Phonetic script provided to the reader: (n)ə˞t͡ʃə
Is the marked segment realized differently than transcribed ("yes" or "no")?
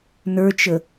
no